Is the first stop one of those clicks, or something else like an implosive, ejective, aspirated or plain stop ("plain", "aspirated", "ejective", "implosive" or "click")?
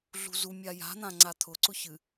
click